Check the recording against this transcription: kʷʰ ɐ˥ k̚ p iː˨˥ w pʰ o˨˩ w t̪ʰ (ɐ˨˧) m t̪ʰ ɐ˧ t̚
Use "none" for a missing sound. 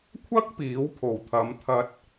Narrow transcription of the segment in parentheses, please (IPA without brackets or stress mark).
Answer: ɐ˨˧